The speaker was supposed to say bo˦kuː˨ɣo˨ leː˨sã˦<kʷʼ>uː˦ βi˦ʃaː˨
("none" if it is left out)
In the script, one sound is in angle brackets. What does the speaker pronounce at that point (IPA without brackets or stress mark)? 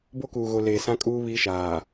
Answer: kʼ